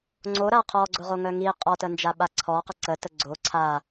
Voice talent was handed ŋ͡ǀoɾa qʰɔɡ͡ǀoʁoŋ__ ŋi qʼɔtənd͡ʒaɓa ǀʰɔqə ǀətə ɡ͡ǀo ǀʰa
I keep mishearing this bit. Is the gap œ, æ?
œ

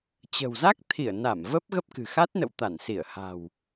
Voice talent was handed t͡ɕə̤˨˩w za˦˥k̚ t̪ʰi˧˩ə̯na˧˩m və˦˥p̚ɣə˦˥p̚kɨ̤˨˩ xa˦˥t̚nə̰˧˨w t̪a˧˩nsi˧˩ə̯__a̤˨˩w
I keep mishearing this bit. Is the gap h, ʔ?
h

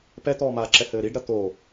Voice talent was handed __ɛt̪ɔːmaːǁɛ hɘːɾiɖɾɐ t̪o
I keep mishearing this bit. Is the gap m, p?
p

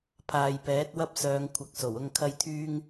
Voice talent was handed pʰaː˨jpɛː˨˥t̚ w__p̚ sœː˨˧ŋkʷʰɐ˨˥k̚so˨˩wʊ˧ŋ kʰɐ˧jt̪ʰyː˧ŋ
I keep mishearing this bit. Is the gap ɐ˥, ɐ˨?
ɐ˥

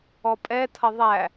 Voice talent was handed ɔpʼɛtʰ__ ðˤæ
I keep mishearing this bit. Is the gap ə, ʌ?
ʌ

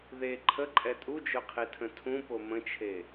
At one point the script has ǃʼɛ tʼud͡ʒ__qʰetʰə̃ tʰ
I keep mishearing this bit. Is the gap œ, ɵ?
œ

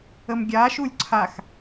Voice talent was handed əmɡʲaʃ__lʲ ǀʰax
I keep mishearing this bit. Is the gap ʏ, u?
u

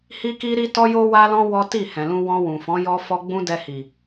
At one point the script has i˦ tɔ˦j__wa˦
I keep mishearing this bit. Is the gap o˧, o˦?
o˦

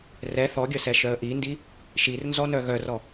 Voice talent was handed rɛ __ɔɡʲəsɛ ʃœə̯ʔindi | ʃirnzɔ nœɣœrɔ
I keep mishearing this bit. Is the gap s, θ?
θ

